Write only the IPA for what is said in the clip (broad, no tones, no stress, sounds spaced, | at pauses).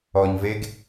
ɔ ɲ v e ɡ